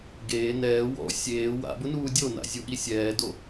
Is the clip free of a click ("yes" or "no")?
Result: yes